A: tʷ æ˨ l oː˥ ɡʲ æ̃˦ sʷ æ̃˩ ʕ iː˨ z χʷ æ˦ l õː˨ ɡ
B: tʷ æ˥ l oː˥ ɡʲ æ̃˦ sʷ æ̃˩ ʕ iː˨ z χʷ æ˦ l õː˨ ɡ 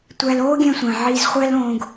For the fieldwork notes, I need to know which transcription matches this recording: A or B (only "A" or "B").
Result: A